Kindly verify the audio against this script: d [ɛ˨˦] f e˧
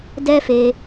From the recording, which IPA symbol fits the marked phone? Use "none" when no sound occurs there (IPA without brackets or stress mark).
ɛ˦